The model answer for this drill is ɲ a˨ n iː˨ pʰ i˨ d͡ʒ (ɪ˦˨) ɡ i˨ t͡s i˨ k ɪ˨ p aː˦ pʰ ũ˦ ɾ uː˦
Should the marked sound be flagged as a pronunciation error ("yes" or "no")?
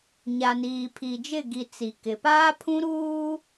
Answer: no